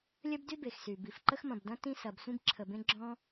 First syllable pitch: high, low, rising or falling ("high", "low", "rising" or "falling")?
high